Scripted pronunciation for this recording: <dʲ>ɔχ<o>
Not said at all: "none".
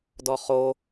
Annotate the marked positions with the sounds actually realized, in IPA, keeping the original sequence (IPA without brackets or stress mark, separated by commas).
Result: d, o